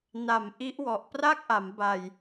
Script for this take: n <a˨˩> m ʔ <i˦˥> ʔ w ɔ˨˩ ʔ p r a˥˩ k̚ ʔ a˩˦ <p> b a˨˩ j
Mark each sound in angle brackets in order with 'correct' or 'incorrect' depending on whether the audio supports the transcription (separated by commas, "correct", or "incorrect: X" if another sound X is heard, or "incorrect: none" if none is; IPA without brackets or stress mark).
correct, correct, incorrect: m